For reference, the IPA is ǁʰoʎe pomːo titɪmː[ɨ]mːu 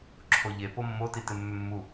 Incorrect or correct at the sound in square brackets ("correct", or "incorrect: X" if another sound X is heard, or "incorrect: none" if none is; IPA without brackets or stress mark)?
incorrect: ʏ